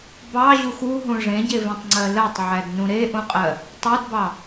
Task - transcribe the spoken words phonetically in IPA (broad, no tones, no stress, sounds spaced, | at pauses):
b ɑ ʑ u x u ɦ ũ ʐ ẽ ɟ e v ẽ tˤ ŋ͡ǀ ɜ l ɜ tˤ ʕ æ d n ũ ɾ e ʔ ũ qʼ ɜ | tˤ o d b ɑ